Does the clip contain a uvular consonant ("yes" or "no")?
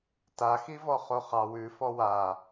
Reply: yes